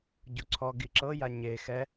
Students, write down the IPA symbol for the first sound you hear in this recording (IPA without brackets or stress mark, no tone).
ɟ